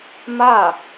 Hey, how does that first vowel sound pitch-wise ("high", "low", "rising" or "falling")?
falling